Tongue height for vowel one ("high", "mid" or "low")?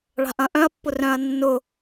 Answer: low